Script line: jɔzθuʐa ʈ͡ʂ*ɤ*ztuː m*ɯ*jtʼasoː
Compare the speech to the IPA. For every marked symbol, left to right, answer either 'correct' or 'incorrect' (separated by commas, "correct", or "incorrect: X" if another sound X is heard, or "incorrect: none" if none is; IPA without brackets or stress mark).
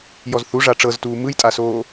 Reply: correct, correct